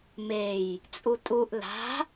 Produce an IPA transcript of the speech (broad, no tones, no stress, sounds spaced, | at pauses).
m e j | t͡sʼ u tʼ u ʔ l a̤